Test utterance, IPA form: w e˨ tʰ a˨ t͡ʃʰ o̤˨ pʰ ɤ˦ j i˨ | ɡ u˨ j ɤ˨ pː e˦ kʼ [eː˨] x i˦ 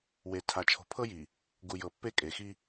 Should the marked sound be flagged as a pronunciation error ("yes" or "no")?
yes